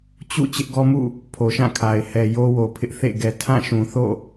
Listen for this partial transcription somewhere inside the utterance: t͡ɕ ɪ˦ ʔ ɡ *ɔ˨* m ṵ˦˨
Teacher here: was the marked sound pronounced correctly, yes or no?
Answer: no